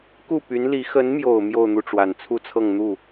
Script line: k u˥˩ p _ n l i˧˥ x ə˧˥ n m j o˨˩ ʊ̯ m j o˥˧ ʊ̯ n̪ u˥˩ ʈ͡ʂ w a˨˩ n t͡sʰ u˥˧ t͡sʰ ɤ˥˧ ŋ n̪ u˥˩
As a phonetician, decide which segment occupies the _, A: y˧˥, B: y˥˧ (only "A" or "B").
A